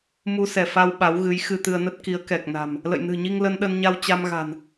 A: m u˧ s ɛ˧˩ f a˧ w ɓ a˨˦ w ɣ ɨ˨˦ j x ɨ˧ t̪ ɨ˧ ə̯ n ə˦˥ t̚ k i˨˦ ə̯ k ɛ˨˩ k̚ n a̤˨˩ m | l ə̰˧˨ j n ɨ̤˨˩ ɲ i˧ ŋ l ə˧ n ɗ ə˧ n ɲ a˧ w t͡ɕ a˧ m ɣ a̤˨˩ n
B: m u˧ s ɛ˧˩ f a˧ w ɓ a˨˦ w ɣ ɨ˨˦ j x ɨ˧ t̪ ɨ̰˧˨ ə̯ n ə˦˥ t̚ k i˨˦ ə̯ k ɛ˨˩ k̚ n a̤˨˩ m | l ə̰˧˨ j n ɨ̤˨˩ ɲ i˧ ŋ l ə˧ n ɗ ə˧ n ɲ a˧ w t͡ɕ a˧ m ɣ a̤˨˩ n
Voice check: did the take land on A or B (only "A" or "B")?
A